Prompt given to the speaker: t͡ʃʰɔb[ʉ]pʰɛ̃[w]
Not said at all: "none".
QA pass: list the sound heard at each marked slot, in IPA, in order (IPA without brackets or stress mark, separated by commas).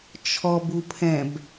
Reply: u, b